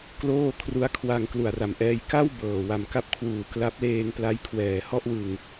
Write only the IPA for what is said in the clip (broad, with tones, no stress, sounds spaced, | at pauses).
k l oː˥˩ kʰ r u˦˥ a̯ kʰ w a˧ ŋ k l u˨˩ a̯ r a˨˩ m ʔ ɛː˧ j k a˥˩ w b ɤː˨˩ w a˨˩ m k a˦˥ p̚ kʰ w uː˨˩ k l a˦˥ p̚ l eː˧ ŋ p l a˦˥ j kʰ w ɛː˨˩ h ɔ˥˩ ʔ w ɯ˧ ŋ